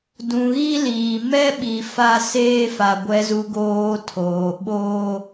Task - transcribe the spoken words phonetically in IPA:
d ũ˨ ɣ i˦ l iː˨ m ɛ˦ ɓ i˨ f a˦ s eː˦ f a˨ ɡʷ ɛ˨ z u˨ ɡ oː˨ tʰ oː˨ ɓ oː˦

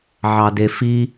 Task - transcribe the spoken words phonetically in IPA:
ʕ ɑ d e f i

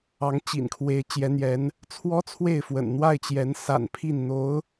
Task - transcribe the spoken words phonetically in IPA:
ɑ˧˥ ŋ t͡ɕ ḭ˨˩ n kʰ w e˧˥ ɪ̯ t͡ɕ j ɛ˧˥ n̪ j ɛ˧˥ n | t͡sʰ w ɔ˥ t͡sʰ w e˥˩ ɪ̯ f w ə̰˨˩ n n̪ w a˥˩ ɪ̯ t͡ɕ j ɛ˧˥ n s a̰˨˩ n pʰ i˥˩ n n̪ o˧˥ ʊ̯

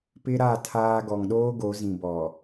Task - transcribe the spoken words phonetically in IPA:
p ɪ˦ ɾ a˦˨ tʰ aː˦ ɡ ɔ˨ ŋ ɗ oː˦ ɡ o˨˦ z ĩ˨ b ɔ˨

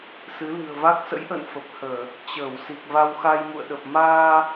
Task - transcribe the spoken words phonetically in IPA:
s ɨ˨˦ l ɨ̤˨˩ ə̯ v a˦˥ k̚ s ə̰˧˥ j ʔ ə̰ː˧˨ n f ə˨˩ p̚ h əː˧˩˨ | t͡ɕ əː˧˩ w s i˨˩ k̚ v a˧ w x a˧ j m ṵ˧˨ ə̯ ɗ ə˨˩ p̚ m aː˧

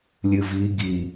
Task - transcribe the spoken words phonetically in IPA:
lʲ ɨ v i ɡ i

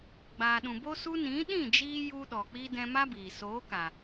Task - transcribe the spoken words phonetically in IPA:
ɡ͡b aː˨ ɗ ũ˨ b o˧ s u˧ n ĩ˨˦ ɗ ĩ˦˨ d͡ʒ iː˧ j u˦ ɗ ɔ˨ k͡p i˦ d ɛ̃˧ m a˦ b iː˨ s oː˨˦ k a˨

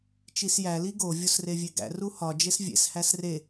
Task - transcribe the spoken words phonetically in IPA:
t͡ʃ i s j æ l i ɡ o vʲ o s r e vʲ e ɡ æ̰ r u h ɒ d͡ʒ e s vʲ ḛ s h æ s r e

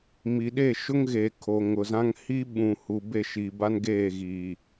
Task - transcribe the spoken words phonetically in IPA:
m i˨ ɗ e˦˨ ʃ ʊ˦ ŋ ɣ e˨ kʰ o˨ ŋ ʊ˨ z ã˦ ŋ h i˦ ɓ ũ˨ h u˨ b e˦˨ ʃ iː˨ b a˦ n ɡ eː˦˨ ɣ iː˨

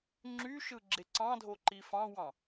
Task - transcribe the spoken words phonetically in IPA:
ŋ͡ǁ y ʃ ɯ ɡ͡ǁ e ǀ ɑ̃ dʱ o ǃ i f ɑ̃ w ɑ̃

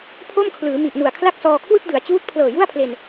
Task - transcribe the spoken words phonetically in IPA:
pʰ o˥˩ m kʰ l ɯː˩˦ m i˨˩ ʔ n u˨˩ a̯ kʰ l a˥˩ k̚ s ɔː˧ kʰ w ɯ˥˩ k̚ d ɯ˩˦ a̯ t͡ɕ uː˦˥ t̚ pʰ l ɤː˨˩ j u˥˩ a̯ pʰ l e˧ n

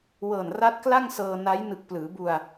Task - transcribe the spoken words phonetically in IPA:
w ɤː˨˩ n r a˦˥ t̚ k l a˥˩ ŋ s ɤː˧ n a˦˥ j n ɯ˨˩ k̚ p l ɯː˩˦ b u˧ a̯

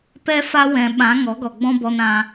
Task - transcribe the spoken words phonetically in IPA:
p ɛ˧ f a˦ w ɛ̃˨ ɓ ã˨˦ ŋ ɔ˨˦ ɡ ɔ˨ ɡ͡b ɔ̃˦ b ɔ˧ n ã˧

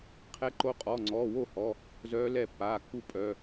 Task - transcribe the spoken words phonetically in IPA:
qʰ ɛ˧˥ ǃ o˧˥ qʼ ɔ˩˧˩ ŋ͡ǀ ɔː˩˧˩ w o˦˨ h ɔ˩˧˩ | z œː˧˥ l ɛ˦˨ pː aː˩˧˩ kː u˦˨ pʼ œ˩˧˩

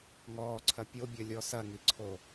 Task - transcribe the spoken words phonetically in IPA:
ŋ ɔː ǀʰ ɐ pʲ o bʲ ɐ lʲ ɔ s ɐ ŋ i ǀʰ o

